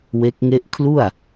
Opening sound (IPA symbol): w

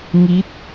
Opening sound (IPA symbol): ŋ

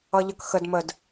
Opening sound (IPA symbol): ʌ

